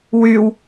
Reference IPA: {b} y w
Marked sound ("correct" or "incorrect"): incorrect